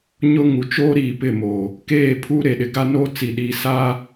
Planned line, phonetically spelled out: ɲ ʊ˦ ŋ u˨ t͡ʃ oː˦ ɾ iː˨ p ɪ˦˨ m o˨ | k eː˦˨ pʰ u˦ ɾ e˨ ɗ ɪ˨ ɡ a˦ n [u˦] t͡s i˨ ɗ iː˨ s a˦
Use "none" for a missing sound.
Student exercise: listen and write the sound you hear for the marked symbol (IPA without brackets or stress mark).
o˦